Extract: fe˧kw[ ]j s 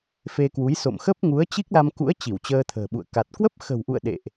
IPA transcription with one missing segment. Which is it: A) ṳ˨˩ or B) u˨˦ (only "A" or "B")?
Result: B